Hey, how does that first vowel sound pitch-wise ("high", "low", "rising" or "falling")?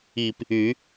low